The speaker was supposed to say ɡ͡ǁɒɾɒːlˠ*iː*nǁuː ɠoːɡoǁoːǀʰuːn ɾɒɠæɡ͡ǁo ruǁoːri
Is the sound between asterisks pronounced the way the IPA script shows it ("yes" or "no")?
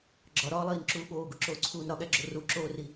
yes